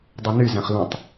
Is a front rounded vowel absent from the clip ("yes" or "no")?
no